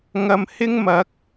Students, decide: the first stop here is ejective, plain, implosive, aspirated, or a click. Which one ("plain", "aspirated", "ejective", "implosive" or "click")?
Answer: plain